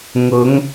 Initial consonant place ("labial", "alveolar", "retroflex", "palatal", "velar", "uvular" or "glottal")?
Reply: velar